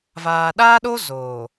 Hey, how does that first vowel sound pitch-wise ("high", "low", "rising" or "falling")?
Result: low